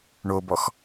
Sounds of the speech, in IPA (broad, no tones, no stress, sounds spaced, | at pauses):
ɳ o b ɔ x